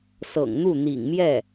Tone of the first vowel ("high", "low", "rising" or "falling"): low